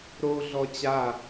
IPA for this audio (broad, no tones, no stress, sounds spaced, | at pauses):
ɾ o ɮ ɔ t͡ɕ a